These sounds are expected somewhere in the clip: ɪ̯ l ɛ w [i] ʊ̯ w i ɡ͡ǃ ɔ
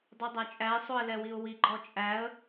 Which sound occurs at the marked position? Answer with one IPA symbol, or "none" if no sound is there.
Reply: i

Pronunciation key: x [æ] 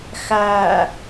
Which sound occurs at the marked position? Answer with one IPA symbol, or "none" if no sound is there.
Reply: æ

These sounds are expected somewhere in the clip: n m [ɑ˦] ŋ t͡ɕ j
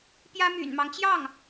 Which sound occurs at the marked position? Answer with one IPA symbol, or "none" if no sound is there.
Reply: ɑ˦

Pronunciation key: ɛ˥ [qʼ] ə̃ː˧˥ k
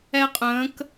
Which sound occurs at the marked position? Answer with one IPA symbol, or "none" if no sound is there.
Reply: qʼ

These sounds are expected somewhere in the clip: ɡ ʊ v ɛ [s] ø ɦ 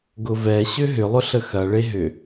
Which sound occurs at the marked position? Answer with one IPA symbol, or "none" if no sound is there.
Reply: ɕ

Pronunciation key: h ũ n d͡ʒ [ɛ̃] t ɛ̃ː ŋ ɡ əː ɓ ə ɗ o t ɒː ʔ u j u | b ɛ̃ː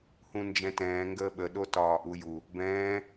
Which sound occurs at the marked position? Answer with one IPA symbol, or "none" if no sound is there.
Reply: ɛ̃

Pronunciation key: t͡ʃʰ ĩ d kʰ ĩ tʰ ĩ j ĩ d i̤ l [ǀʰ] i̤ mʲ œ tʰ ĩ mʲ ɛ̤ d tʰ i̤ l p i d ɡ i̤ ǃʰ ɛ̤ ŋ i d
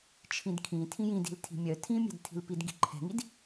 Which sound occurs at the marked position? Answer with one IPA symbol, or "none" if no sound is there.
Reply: tʰ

